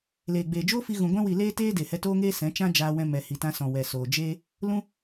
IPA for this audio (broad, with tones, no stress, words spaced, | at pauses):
leː˨ɡ͡beː˨ d͡ʒoː˦fi˧ ɣũ˨ɡʷɛ̃˧wi˨ leː˦teː˦ de˨hɛ˧toː˦ŋeː˦ sɛ̃˨˦t͡ʃã˦ d͡ʒaː˧wɛ̃˧ mɛ˨ hi˨tã˧sɔ̃˨ wɛ˨soː˨d͡ʒeː˦ | lũ˧